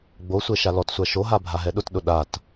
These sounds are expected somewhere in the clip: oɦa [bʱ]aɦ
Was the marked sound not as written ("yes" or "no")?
no